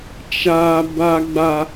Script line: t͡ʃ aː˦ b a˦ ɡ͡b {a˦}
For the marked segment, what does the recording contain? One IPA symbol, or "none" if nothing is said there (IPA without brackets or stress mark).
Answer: a˦